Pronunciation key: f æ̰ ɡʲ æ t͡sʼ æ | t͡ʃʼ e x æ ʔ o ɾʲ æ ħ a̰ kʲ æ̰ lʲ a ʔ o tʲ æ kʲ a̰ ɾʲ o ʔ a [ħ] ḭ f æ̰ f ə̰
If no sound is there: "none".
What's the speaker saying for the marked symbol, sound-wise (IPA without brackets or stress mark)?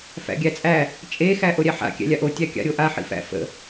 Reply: ħ